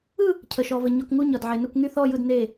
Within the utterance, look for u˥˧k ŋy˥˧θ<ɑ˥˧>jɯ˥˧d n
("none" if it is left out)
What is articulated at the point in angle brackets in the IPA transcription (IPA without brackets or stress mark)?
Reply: ɔ˥˧